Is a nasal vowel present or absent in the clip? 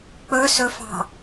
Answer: absent